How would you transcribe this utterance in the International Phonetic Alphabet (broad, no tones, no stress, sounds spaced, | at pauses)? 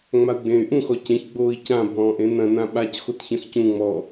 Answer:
ŋ͡m a u̯ ɡ͡b ẽː y̯ ʔ ũ x ɔ c ẽ ç ɡ͡b oː i̯ c ã bʱ ɔ̃ː ʔ ẽ n ɐ̃ n ã ɓ a c x o t ç ɐ̃ x c ũ ŋ͡m ɔ